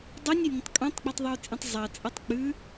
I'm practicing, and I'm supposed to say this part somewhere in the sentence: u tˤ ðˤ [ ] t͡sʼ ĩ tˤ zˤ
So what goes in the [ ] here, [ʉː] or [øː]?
ʉː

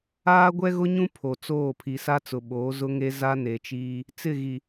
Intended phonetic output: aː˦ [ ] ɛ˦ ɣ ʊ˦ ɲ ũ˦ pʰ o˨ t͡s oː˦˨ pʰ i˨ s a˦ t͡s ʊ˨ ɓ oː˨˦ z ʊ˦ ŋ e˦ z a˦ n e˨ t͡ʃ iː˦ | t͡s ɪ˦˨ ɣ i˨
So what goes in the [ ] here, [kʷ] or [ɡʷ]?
ɡʷ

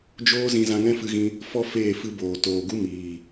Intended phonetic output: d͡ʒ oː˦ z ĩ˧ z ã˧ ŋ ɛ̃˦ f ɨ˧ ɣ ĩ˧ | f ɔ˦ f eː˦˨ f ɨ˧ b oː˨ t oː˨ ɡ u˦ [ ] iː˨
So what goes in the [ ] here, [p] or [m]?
m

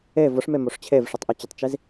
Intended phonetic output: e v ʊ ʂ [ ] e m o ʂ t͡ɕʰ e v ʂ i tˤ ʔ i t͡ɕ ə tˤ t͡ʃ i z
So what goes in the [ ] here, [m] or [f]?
m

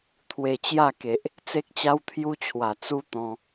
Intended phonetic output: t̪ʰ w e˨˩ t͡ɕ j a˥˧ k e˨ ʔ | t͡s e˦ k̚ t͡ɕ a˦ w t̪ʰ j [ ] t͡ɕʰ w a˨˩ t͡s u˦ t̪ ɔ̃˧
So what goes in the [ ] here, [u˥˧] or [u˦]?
u˦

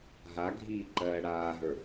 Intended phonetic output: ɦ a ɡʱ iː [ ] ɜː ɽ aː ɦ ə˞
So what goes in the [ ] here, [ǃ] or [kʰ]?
ǃ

